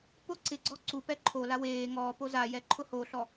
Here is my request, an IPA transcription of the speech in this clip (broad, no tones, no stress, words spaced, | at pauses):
pʊ ǀɪɡ͡ǀɔ ǀupɛ ǃʰola weː ŋɔːpo zajɛ ǃʰʊhoɬɔ